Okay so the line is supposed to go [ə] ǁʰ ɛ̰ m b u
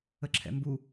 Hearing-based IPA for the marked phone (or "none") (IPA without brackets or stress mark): ə